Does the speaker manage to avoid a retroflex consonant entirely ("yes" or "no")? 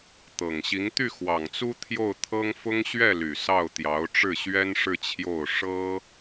no